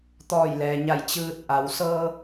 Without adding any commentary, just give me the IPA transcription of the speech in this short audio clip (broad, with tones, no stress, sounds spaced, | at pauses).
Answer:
t̪ ɔː˧˩ j l ɛː˩ ɲ a˧˩ j t͡ɕ ɯː˧ t̚ ʔ a˩ w s ɤː˧